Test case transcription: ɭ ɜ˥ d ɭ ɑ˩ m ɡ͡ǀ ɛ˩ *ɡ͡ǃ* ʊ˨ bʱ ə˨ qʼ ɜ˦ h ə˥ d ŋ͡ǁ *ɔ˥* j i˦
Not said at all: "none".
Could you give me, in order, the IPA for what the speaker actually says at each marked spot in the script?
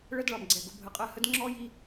ɡ, ɔ˥

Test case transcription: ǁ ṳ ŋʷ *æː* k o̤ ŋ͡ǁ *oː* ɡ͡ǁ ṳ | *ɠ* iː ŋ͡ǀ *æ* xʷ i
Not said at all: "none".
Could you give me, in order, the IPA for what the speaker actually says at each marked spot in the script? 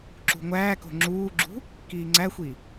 æː, uː, k, æ

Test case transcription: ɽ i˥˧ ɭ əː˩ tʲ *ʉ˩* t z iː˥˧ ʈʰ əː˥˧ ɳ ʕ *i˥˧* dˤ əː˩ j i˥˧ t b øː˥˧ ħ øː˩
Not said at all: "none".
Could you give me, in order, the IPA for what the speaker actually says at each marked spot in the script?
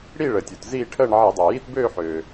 u˩, i˧˩˧

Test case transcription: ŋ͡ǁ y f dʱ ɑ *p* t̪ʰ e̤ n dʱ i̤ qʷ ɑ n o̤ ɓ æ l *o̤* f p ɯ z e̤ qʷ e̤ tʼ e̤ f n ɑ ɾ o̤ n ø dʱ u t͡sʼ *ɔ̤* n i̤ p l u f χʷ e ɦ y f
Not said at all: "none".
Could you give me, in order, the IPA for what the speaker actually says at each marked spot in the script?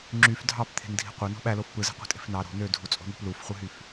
p, o, o̤

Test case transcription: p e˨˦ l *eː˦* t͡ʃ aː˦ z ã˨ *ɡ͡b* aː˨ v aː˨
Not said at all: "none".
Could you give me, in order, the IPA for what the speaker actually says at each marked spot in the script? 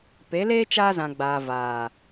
eː˦, ɡ͡b

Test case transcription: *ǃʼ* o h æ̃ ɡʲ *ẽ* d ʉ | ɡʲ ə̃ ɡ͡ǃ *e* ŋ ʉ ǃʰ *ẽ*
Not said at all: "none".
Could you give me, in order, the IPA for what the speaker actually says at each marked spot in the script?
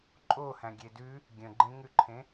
ǃʼ, e, ẽ, ẽ

